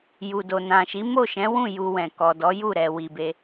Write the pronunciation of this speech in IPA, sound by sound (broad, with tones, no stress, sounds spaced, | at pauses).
j u˨ d o˨ n ã˨ ʃ i˨˦ m o˦˨ ʃ ɛ̃˨˦ w ũ˦˨ j u˧ w ɛ̃˨ k ɔ˨ d ɔ˨˦ j u˦˨ ɾ ɛ˨ w i˨ b e˧